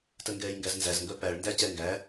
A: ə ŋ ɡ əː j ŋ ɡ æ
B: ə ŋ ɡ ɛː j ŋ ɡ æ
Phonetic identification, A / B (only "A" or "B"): B